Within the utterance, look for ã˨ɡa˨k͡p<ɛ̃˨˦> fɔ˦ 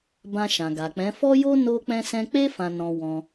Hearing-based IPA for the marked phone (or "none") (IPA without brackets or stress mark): ɛ̃˨˦